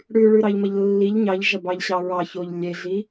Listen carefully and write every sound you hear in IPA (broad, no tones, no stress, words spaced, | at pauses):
ɽʉɭʉɾɑʎmɐʎ lːiʎ ɲɑʎʒɐbɑʎɕɑ ɹɑçoʎ lʲeɮi